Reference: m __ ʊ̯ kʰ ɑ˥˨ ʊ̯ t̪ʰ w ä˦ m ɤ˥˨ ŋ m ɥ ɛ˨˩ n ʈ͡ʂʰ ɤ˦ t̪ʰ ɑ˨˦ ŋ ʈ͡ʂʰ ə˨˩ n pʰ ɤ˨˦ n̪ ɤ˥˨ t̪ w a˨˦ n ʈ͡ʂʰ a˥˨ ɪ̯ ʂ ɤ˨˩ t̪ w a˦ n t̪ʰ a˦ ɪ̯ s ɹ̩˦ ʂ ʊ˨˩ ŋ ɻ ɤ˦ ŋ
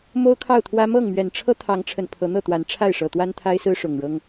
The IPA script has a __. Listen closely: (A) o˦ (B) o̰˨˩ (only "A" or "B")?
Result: A